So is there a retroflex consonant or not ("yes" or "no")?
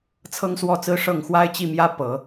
yes